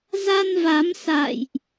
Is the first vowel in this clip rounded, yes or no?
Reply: no